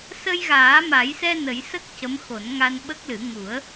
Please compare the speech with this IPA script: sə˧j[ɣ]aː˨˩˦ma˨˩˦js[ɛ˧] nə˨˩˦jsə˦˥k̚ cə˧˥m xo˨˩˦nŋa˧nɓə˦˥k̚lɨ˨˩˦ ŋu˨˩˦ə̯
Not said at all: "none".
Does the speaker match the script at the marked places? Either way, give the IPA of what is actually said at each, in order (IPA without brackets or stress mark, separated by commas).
ɣ, ɛ˧